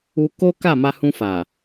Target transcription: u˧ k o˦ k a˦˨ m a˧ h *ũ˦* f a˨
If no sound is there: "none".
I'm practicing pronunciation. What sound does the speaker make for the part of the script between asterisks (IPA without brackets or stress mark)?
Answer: ũ˧